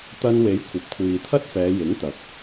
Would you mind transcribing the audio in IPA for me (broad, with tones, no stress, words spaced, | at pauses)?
t̪ɐ˧nwe˨˥j kʷʰɐ˨p̚kʷʰiː˨t̪ʰɐ˥t̚fɛː˨˧ jɪ˨˥ŋt̪ɐ˨˥k̚